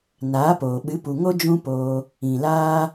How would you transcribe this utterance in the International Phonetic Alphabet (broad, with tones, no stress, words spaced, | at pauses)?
naː˨˦poː˨ ɓɨ˨˦pu˨ŋo˦ d͡ʒũ˦poː˧ | ĩ˨laː˦